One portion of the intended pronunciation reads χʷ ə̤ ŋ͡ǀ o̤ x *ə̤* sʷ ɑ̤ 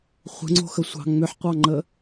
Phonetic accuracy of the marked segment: incorrect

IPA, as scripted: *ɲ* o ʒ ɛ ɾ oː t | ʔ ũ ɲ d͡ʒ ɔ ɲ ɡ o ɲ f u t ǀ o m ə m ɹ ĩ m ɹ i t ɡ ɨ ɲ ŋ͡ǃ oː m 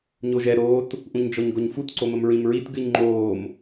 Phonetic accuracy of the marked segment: correct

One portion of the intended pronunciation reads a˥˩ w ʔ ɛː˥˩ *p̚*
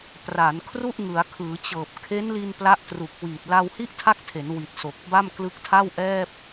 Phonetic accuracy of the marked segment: correct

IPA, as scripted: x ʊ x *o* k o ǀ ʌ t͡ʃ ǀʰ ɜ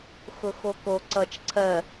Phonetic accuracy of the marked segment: correct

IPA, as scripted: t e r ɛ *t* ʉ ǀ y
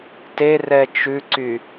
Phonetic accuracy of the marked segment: incorrect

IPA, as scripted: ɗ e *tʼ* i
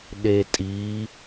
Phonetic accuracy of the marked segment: correct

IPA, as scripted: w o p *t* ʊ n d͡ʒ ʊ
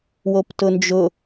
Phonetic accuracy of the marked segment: correct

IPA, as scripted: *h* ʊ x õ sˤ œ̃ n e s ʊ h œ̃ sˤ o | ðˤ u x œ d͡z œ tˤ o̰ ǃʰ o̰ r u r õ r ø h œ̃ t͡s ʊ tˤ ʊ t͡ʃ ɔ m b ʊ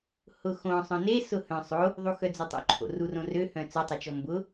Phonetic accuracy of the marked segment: correct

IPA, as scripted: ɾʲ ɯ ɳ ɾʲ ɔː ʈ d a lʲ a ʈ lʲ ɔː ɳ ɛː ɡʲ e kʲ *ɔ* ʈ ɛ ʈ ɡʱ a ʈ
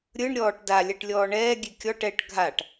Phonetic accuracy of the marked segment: correct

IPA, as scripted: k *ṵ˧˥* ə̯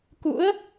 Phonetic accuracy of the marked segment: correct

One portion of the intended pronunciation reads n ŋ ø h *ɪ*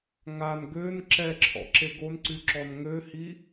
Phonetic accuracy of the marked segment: incorrect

